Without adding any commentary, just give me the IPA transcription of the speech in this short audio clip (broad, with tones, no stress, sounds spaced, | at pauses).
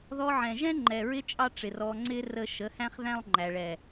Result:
ð ɔ˧ ʕ ɛ̃˨ ʒ ɛ̃˦ ŋ͡ǃ ɛ˨ ɹ ɪ˧ t͡ʃʼ ɑ˦ ʈ͡ʂ ɪ˨ r ɔ˧ ŋ͡ǀ ɪ˦ r ə˧ ʃ ə˨˦ h æ̃˦ χ ð æ̃˦ lˠ ŋ͡ǃ æ˨ ɭ ɛ˨